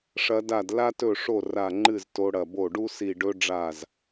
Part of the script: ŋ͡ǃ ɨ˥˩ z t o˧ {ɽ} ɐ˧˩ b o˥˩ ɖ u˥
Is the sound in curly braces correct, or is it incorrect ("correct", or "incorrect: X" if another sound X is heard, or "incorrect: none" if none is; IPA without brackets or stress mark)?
correct